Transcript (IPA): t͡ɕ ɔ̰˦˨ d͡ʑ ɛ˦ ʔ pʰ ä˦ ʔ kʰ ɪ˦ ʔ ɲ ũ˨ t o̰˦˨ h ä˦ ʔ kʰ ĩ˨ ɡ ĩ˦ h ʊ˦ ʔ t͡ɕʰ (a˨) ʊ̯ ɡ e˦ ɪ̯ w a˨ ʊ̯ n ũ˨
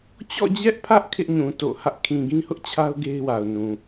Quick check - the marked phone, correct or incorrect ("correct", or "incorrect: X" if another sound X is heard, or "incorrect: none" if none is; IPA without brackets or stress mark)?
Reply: incorrect: a˦